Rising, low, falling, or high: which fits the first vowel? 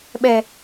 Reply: high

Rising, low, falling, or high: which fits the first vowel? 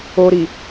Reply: low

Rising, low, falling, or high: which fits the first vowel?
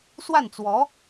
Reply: falling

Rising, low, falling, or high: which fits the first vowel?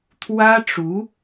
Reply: high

